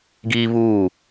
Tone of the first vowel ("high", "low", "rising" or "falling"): high